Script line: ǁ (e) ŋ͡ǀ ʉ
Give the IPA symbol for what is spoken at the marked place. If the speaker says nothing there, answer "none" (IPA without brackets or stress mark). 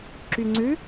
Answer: y